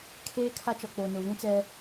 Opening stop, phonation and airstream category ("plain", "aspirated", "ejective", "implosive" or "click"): aspirated